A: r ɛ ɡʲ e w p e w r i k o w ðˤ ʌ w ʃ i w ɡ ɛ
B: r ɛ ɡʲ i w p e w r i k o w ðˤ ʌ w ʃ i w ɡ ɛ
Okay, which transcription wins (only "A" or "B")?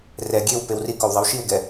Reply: A